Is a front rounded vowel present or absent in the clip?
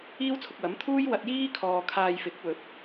absent